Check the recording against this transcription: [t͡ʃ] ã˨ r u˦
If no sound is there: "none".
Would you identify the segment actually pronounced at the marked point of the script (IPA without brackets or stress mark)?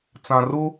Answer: t͡s